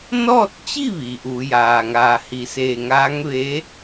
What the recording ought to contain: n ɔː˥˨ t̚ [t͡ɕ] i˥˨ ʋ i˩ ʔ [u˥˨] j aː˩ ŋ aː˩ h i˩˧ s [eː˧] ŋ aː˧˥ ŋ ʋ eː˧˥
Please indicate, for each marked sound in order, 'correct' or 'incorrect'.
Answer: correct, incorrect: u˩˧, incorrect: eː˧˩

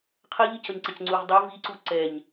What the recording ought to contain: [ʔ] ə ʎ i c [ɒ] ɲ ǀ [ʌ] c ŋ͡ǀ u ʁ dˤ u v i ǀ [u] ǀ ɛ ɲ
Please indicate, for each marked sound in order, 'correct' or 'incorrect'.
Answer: incorrect: qʰ, incorrect: ʌ, correct, correct

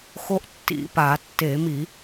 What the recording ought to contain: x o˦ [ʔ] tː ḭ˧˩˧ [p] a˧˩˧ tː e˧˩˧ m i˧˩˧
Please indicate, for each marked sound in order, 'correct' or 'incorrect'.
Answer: correct, correct

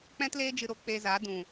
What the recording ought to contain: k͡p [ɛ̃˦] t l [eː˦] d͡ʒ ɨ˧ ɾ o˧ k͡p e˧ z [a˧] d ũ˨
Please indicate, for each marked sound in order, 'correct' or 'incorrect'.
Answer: correct, correct, incorrect: a˨˦

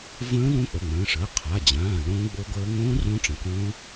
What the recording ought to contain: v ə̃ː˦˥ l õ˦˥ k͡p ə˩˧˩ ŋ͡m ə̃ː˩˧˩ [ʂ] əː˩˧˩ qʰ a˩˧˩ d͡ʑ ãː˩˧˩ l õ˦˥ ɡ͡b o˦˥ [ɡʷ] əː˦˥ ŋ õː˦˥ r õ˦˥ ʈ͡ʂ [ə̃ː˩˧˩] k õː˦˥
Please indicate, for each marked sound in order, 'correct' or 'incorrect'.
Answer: correct, correct, incorrect: ə̃˩˧˩

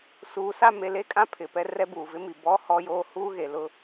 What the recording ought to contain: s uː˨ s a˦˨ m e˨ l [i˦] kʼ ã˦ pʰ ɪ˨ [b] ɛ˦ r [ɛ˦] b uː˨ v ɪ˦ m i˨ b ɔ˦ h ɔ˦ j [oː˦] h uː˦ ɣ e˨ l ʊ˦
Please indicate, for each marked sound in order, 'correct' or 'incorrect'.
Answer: incorrect: e˦, incorrect: p, correct, correct

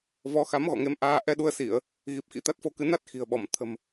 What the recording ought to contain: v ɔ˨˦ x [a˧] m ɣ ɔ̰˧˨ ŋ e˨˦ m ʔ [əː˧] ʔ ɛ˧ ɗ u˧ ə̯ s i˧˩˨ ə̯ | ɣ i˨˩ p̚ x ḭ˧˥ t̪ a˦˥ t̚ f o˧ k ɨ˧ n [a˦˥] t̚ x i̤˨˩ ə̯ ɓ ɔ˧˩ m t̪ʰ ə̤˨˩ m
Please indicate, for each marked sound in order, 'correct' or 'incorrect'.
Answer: incorrect: a˨˦, incorrect: aː˧, correct

